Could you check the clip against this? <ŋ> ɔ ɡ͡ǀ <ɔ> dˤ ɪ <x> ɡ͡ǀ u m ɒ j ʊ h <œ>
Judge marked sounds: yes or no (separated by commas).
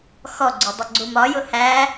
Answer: no, no, no, no